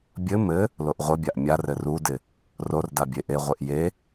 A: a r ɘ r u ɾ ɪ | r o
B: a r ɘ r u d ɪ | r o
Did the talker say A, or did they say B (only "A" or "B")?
B